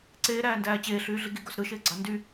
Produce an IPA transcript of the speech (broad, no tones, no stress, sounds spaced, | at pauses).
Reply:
ǀ eː ɾ æː n d æː t͡ɕ eː ɬ yː ɮ i ɡ i ɡ o s ɾ ɯ ʃ eː ɡ͡ǀ ɑ n d y